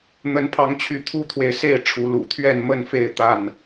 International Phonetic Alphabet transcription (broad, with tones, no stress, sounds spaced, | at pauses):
n̪ ə˨˦ n pʰ ɑ˨˦ ŋ t͡ɕʰ y˨˦ t̪ʰ u˦ t̪ʰ w e˨ ɪ̯ s e˥˨ ɪ̯ ʈ͡ʂʰ u˨˦ l ṵ˨˩ t̪ʰ ɥ ɛ˥˨ n m ə˥˨ n f e˥˨ ɪ̯ t̪ a˥˨ n